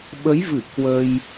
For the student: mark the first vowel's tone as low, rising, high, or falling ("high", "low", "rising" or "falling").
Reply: rising